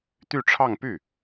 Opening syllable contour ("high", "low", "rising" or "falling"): falling